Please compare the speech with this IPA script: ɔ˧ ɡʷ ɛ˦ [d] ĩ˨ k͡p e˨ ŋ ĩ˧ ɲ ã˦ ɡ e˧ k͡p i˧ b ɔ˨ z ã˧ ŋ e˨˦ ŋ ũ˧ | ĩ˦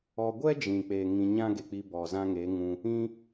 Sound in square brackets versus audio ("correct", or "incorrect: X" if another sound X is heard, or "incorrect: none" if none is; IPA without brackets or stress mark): incorrect: d͡ʒ